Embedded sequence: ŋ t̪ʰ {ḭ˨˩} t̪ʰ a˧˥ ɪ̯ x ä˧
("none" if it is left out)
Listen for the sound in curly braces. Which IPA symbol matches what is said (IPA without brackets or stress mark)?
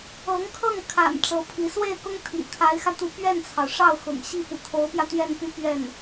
ḭ˨˩